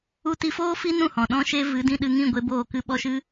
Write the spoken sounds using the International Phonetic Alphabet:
u˧ t i˧ f oː˦ f i˦ n ũ˦˨ h ɔ̃˨ ɗ ɔ̃˦ ʃ e˦ v ɨ˨˦ d ĩ˧ ɗ ɨ˧ ŋ ĩ˦˨ ɡʷ e˧ b oː˦˨ k ɨ˦ ɓ ɔ˦ ʃ ɨ˦

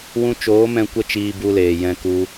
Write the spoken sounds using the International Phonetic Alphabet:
w ũ˧ t͡ʃ oː˨˦ m ɛ̃˧ kʷ ə˦ t͡ʃ iː˧ b u˧ l eː˨ j ɛ̃˧ k u˧

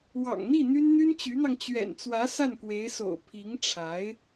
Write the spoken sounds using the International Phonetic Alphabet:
w ɑ̰˨˩ ŋ n̪ i˥˩ n̪ y˥ n n̪ y˥ n t͡ɕ y˧˥ n̪ ɑ˧ ŋ t͡ɕ ɥ ɛ̰˨˩ n t͡s w ä˧˥ s a˥˩ n k w e˧˥ ɪ̯ s o̰˨˩ ʊ̯ pʰ i˧˥ ŋ ʈ͡ʂʰ a˧˥ ɪ̯

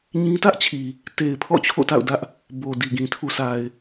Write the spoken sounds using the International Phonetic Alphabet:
ɲ ĩ˦ t ä˦ ʔ t͡ɕʰ i˨ | t e˨ ɪ̯ pʰ ɔ̰˦˨ t͡ɕʰ o̰˦˨ t a̰˦˨ ʊ̯ d ä˦ ʔ | b o˨ d i˨ ɡ ĩ˨ tʰ u˨ s a˨ ɪ̯

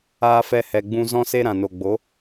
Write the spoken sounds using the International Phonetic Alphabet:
aː˧ f ɛ˧ h ɛ˨ ɡ͡b ũ˧ z ɔ̃˦ s e˦ ɾ ã˨ n o˨ ɡ͡b o˨˦

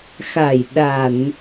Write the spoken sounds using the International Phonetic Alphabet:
x a˧˩ j ɗ a˧˩˨ n

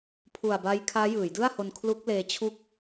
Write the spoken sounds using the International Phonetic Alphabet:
pʰ u˨˩ a̯ b a˦˥ j kʰ aː˦˥ j ɯː˩˦ j d ɯ˥˩ a̯ h o˧ n kʰ l u˦˥ k̚ l eː˧ t͡ɕʰ u˥˩ k̚

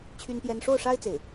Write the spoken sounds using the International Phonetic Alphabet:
t͡ɕʰ y˥ n p j ɛ˥ n ʂ o˥˩ ʊ̯ ʂ a˥ ɪ̯ t͡s e˥˩ ɪ̯

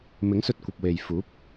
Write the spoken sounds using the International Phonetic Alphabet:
m ɪ˨˥ ŋ s ɵ˧ t̚ kʷ ɐ˨ p̚ w e˨ j f uː˨˥ p̚

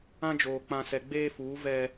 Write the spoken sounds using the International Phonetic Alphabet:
ã˦ d͡ʒ oː˨ k͡p ã˨ s ɛ˨ ɡ͡b eː˦ f uː˨˦ v ɛ˦

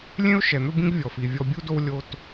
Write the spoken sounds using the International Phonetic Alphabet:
lʲ ẽ˦ ʊ̯ ʃ ɛ˨ n̪ ɵ˦ b ĩ˦ ɡ vʲ ɔ˨ f i˨ vʲ ɔ˦ bʲ u˦ d o˦ w lʲ o˦ t

